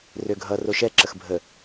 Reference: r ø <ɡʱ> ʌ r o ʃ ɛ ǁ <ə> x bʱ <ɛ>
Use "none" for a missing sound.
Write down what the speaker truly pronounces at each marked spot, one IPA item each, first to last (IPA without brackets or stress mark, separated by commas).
ɡʱ, ə, ə